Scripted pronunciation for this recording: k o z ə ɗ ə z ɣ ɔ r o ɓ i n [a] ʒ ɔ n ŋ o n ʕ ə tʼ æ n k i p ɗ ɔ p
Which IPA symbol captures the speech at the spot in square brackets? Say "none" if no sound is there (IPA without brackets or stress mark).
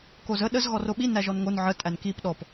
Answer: æ